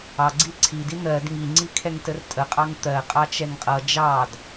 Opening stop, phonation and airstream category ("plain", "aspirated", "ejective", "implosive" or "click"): click